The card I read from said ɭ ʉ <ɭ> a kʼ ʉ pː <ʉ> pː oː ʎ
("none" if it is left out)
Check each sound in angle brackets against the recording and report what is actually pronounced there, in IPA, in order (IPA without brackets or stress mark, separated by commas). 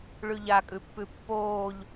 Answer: ʎ, ʉ